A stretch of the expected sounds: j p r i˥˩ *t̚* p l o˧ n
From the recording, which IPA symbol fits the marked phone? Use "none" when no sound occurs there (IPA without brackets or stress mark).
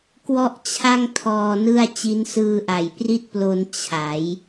t̚